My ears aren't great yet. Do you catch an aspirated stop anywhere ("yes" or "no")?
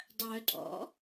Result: no